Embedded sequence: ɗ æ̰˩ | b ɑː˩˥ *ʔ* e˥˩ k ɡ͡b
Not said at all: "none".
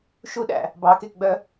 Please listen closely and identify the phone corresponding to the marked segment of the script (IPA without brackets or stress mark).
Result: k